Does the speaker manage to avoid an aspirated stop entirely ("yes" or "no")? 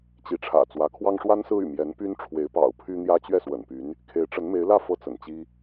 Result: no